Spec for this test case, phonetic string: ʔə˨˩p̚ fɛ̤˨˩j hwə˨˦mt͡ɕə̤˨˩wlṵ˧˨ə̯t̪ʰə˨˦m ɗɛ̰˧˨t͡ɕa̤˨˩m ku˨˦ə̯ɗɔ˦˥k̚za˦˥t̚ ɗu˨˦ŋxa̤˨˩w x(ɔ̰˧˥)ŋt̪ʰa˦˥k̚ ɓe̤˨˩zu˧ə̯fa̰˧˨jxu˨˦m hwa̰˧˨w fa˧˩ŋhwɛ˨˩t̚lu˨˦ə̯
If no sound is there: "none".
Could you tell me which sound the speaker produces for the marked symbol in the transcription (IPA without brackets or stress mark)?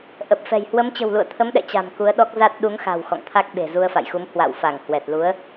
ɔ̰˧˨